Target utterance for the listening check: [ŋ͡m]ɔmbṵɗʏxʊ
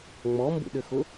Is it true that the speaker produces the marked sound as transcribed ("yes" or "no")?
yes